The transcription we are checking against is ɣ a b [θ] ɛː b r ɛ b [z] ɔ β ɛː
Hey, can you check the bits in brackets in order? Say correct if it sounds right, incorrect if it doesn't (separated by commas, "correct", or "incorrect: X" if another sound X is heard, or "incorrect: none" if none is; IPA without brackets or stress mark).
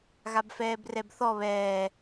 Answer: incorrect: f, incorrect: θ